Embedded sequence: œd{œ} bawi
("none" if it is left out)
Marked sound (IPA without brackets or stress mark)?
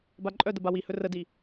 ə